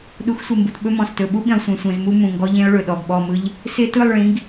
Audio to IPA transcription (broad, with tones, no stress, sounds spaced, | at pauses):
ɗ u˨˦ x sʷ e˨ m b u˨ t ɓ ɵ˦ m ɔ̃˨ s t ɵ˨ ɓ u˦ ɓ ĩ˨ lˠ sʷ ẽ˨ sʷ ẽ˨ z m u˦ m ũ˨ ŋ ɡ ɔ˦ ʎ ẽ˦ ʊ̯ ɭ ɵ˨ ɗ ɔ˨ ɡ ɓ ɔ˦˨ m ɯ˦ ʎ | s ɪ˦ t ɯ˦˨ lˠ ɭ ĩ˨˦ ɡ